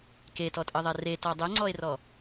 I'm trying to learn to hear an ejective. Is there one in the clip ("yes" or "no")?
yes